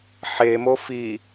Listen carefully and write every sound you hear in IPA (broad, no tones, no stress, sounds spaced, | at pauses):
ħ e m o f i